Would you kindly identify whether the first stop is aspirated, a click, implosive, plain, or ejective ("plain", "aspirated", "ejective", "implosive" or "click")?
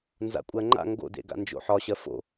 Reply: ejective